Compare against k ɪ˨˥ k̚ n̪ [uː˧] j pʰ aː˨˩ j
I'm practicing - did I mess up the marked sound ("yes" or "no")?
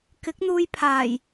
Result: no